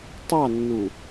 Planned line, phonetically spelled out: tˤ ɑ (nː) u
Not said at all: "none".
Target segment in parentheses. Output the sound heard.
nː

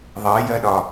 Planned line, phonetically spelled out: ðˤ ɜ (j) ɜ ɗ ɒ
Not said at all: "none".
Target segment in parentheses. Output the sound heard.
j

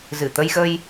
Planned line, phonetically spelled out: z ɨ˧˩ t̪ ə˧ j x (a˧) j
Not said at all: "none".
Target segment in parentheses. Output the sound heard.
ə˧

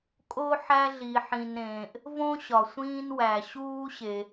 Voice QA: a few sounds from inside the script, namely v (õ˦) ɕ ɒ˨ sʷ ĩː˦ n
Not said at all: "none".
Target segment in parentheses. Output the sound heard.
õ˦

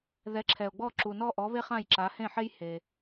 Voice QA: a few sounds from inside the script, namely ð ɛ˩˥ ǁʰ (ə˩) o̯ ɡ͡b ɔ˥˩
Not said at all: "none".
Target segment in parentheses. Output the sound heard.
ɛ˩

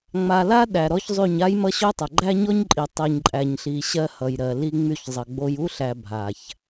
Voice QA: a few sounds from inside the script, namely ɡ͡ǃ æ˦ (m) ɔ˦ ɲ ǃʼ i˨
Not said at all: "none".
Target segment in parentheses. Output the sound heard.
ɲ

